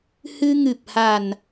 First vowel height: high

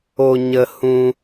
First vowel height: mid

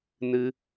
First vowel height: high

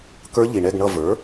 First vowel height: mid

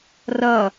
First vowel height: mid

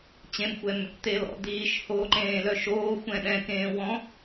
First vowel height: mid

